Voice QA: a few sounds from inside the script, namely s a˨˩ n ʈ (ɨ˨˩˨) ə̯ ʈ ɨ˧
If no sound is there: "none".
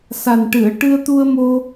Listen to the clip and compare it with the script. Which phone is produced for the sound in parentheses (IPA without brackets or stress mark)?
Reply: ɨ˨˩˨